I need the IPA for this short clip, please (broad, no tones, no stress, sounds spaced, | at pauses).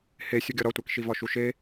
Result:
h e sʲ u ɡʲ ɒ ɾ ɒ tʷ æ k ʃ i v ɒ ʃ u ʃ e